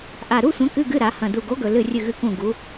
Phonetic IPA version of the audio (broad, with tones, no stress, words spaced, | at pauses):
ʔa˨˩ɾu˧˥˧sʷɐ̃˨˥ kɨ˧˥˧ɡɨ˧˥˧ɾa˩˧ hɐ̃˨˩du˨˩ɡo˨˥ɡɵ˨˩ lɨ˦˨rʲɨ˦˨ɣɨ˦˨kũ˦˨ ɡu˨˥